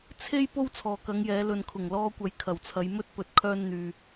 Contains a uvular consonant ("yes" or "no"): no